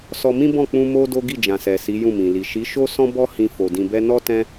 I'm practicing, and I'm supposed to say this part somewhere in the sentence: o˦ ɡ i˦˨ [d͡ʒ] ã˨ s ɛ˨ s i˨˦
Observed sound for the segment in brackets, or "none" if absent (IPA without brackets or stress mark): d͡ʒ